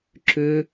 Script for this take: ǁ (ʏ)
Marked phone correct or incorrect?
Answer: correct